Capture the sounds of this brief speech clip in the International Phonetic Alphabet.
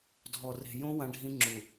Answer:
dʱ ɔ˨ r e̤˨ j õ˦ w ã˦ ɖʱ ĩ˦ ŋ͡ǁ u˨

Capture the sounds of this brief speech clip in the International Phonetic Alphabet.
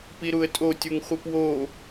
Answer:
p i ɾ u ə̯ tʼ o tʲ u ŋ χʷ i p w o

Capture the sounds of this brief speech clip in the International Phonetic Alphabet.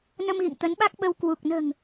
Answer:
n ə˧ m ɣ ḭ˧˨ ŋ t̪ ə˨˦ n ɓ a˦˥ k̚ ɓ ə˧ w k w u˨˩ k̚ n ə̤ː˨˩ ŋ

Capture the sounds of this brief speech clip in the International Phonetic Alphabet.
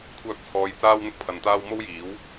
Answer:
kʷʰ œː˧ p̚ t͡sʰ ɔː˨˧ j t͡s aː˥ w n̪ ʊ˥ k̚ pʰ ɐ˨ n t̪ aː˥ w m o˥ w j iː˨˥ w

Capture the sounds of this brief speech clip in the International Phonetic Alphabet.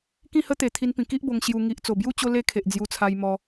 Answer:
k ĩ˥˧ h ə˦ t̪ e˨˩ t̪ʰ i˧ n p ĩ˨˩ k i˦ ʔ b o˧ ŋ ɕ j u˧ ŋ i˨ ʔ t͡s o˨˩ b j u˦ t͡ɕ o˦ l e˦ kʰ e˨ ʔ d͡z j u˧ t͡sʰ a˧ j m ɔ˧

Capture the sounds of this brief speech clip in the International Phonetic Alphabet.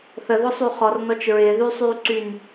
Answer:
θ ə ð ʊ sˤ y χ ɔ r n ɔ t͡ʃ ɹ ɪː ð y sˤ yː ǀ y n

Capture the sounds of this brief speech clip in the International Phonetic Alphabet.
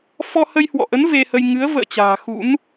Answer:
f ɔ˧ h ə˧ j h w ɔ̰˧˨ ʔ ə˨˦ n v e˧ h ə˧ j ŋ ɨ˨˦ ə̯ v ə̰ː˧˨ t͡ɕ a̤ː˨˩ x ṵ˧˥ n

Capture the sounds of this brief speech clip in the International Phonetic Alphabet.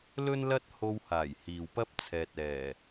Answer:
l ɵ˥ n l ɐ˥ t̚ h o˧ w h aː˨˩ j h iː˨ w p ɐ˥ p̚ t͡sʰ ɛː˨ t̚ ɛː˨˩

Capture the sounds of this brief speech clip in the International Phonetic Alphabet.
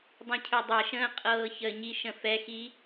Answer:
dˤ ĩ cʰ ø dˤ ɛ ʃ ə̃ː qʼ ɤː ç ə ɲ i ʃ ə̃ f ɛ x i

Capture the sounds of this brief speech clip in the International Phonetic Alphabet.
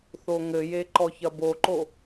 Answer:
θ o ŋ ɘ j e ǃ ɔ ç ɐ b o ǃ o

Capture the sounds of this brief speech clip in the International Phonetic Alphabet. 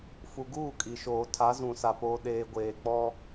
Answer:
f u˨ ɡ uː˦˨ kʼ i˨ ʃ oː˨ tʰ a˨˦ z ũ˨ s a˨ p oː˨ ɗ eː˨ ɡʷ eː˨ k͡p ɔ˦

